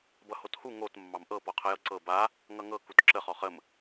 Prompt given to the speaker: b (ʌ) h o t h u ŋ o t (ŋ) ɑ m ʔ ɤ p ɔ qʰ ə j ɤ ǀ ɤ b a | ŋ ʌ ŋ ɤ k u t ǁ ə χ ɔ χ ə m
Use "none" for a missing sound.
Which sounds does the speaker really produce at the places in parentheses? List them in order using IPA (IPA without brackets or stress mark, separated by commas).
ʌ, mː